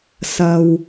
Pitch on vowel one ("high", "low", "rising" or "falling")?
low